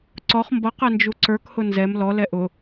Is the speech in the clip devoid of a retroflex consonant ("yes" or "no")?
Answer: yes